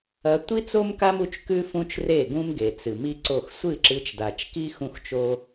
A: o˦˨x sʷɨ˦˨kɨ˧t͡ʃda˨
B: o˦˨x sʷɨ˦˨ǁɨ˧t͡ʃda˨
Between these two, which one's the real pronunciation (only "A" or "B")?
B